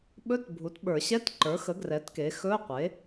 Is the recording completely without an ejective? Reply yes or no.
yes